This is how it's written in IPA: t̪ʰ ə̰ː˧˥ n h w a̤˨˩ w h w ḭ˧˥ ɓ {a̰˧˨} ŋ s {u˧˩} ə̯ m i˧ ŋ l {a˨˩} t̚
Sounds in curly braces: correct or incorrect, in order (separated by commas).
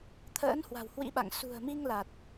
correct, incorrect, correct